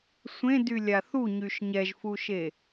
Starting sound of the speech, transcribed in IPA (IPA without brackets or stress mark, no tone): sʷ